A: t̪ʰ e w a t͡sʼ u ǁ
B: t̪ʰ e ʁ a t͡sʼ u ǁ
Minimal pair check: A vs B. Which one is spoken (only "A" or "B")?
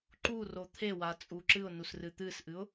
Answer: A